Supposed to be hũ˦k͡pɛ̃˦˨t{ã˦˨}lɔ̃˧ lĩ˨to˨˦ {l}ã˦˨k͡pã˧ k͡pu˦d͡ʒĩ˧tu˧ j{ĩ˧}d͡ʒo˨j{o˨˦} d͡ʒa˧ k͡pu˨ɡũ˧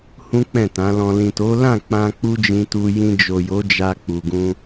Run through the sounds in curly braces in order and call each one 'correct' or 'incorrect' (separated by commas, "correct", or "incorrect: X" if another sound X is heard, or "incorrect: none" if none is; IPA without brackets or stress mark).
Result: incorrect: ã˨˦, correct, correct, correct